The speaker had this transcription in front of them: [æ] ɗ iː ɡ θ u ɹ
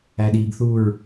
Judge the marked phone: correct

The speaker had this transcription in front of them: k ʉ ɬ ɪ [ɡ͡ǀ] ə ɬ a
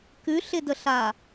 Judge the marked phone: incorrect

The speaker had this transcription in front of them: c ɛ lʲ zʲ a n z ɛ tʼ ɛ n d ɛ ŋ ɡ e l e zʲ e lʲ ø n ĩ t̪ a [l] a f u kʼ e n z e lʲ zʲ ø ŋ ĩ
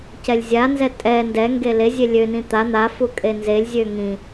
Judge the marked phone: incorrect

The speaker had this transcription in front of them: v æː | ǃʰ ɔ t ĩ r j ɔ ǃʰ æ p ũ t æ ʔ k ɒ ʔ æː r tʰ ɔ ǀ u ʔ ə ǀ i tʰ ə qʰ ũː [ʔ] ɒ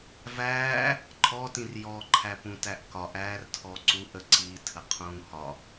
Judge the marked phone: incorrect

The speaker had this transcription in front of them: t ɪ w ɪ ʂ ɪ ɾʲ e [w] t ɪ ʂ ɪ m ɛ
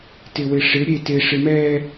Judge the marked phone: incorrect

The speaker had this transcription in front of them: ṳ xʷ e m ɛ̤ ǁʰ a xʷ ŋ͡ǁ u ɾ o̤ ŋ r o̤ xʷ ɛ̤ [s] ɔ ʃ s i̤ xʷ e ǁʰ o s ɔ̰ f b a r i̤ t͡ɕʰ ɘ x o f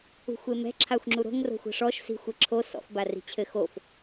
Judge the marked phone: incorrect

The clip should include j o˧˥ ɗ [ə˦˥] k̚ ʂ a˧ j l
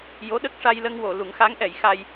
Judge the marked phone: correct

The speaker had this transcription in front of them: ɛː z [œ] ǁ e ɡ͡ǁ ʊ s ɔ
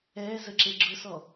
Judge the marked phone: incorrect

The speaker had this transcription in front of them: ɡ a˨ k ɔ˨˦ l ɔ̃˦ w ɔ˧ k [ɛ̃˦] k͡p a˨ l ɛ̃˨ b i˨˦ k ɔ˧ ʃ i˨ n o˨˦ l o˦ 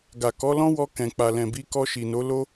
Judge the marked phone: incorrect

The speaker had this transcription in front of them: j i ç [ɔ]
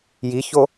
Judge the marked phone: incorrect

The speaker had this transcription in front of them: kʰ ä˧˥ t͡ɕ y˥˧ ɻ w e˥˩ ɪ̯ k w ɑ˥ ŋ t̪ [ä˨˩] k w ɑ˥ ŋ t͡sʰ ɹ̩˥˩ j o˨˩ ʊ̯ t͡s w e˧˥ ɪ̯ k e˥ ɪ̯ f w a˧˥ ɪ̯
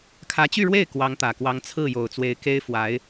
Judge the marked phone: correct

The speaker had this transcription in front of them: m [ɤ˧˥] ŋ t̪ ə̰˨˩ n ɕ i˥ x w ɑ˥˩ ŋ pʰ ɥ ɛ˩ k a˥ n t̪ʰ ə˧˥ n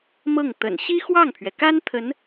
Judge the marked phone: incorrect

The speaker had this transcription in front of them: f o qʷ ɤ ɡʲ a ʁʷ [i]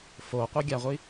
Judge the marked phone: correct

